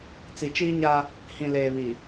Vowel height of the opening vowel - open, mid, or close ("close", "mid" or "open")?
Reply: close